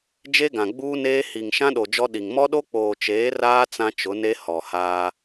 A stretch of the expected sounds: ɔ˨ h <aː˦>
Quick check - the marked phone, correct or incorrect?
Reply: correct